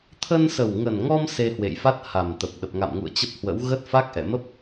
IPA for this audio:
t̪ʰ ə˧ n s ə˨˩ w ŋ ə˨˩ n ŋ ɔ˧ m s e˧ h w ḛ˧˨ j f a˦˥ t̚ h a˨˩ m t̪ ə˨˩ p̚ ɗ ə˨˩ p̚ ŋ a̰˧˨ m ŋ ṵ˧˨ ə̯ t͡ɕ ə˦˥ p̚ h w ə̰˧˥ w ɣ ə˦˥ t̚ f a˦˥ k̚ ʔ ɛ̰˧˨ m ə˦˥ p̚

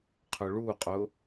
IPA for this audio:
qʰ ʊ ɭ u qʼ ʊ

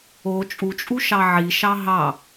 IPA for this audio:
o t͡ʃʼ u t͡ʃʼ u ʃ ɑ ʕ i ʃ ɑ ɦ ɑ

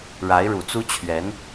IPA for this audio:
ɻ a˧˥ ɪ̯ ɻ u˨˩ t͡s u˥ t͡ɕʰ ɥ ɛ˧˥ n

